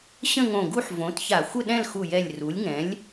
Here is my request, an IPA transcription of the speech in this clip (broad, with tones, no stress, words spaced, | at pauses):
ɕə̃˥˧ŋõ˧˩ɡu˥˧ħ võ˩˥tça˧˩˧ xʷə˥˧ɗɛ̃˥˧lxu˧˩jɛ˧˩lʲ ru˩˥lʲŋɛ̃˩˥lʲ